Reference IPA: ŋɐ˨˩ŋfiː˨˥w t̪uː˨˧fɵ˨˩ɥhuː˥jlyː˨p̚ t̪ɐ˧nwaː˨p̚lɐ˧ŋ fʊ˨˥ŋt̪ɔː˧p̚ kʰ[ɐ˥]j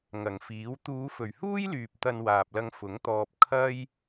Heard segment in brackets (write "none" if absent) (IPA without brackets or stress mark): ɐ˥